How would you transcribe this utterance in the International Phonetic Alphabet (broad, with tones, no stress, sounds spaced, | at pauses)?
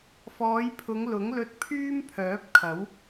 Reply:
f ɔː˨˧ j pʰ ʊ˨˧ ŋ l ʊ˨˥ ŋ l ɵ˧ t̚ pʰ yː˥ m pʰ œː˨˥ p̚ kʰ ɐ˨˥ w